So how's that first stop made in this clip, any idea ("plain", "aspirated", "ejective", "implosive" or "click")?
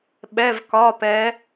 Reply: implosive